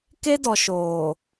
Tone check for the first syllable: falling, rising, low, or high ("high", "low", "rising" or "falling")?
high